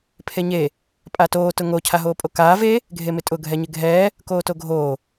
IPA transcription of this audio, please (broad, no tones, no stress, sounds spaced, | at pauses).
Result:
pʰ e ɲ e | pʼ a t oː t ʊ ŋ o cʰ a ɦ oː pʼ o k aː v e | ɡʱ e m ɪ tʼ ʊ ɡʱ ɛ ɲ ɪ ɡʱ ɛː | k oː t o ɡʱ oː